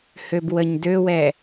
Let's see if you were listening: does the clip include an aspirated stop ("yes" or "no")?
no